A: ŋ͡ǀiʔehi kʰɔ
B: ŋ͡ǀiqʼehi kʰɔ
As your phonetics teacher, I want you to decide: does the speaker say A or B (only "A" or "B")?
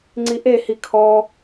A